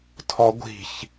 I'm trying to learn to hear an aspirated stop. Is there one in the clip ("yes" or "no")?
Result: yes